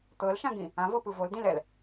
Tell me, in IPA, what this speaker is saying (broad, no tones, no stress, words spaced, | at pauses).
t̪ɤlʃãɡĩ | ãvɤpɯ voldĩlɛl